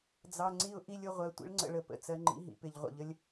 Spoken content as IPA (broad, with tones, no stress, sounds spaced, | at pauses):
d͡z ɑ˧ ŋ͡ǀ i˦ ʊ̯ ʔ i˦ lʲ ʊ˧ ʁʷ ɜ˧ tʷ ḭ˦ ɭ ŋ͡ǀ ə̰˧ ɭ ə˨ p ə̰˨ t͡s ɜ˧ ŋ͡ǃ ḭ˨˦ ɦ ḭ˨ p ɪ˧ ʎ ʁʷ ə̰˧ ʎ ə˦ lʲ